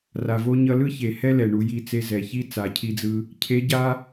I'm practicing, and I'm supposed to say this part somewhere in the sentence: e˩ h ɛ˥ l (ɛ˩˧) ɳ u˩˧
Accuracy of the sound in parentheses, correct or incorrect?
incorrect